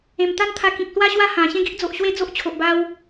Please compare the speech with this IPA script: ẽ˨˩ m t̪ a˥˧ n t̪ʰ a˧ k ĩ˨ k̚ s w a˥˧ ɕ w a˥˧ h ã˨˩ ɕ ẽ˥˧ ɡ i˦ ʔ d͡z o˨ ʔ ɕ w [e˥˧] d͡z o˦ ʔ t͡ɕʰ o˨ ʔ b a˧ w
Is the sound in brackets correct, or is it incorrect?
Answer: correct